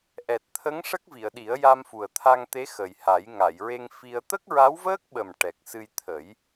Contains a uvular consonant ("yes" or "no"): no